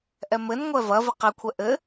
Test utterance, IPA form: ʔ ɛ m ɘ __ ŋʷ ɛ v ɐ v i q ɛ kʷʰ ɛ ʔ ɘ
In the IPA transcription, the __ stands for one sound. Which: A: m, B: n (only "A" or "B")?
B